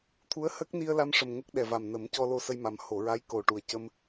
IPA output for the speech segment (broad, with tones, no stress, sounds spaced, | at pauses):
t̪ʰ u˧˥ ə̯ h ə˦˥ k̚ n i˧ ə̯ l a˧ m ʂ ə˨˩ m ŋ ə˦˥ k̚ ɗ ɛ˨˩ v a˨˩ m n ə˨˩˦ m c ɔ˧ l o˧ s ə˧ j m a˨˩ m h o˨˩˨ ɹ a˧˥ j k o˨˩ ʈ u˨˩ ə̯ c ə˧ m